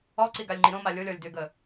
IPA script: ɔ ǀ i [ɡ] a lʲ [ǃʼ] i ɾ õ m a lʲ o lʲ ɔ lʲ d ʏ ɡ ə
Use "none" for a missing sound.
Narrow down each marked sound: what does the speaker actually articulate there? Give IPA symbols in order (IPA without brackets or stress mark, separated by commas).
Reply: ɡ, ŋ͡ǃ